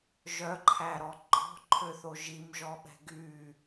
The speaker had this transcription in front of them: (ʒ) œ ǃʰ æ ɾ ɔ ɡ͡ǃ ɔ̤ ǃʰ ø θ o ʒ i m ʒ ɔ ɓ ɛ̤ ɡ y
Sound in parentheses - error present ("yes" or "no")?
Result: no